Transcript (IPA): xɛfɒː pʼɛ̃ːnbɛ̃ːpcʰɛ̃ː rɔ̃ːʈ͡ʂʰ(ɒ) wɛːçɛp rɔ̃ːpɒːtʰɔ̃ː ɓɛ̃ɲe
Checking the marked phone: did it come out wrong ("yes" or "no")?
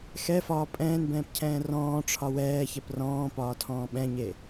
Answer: no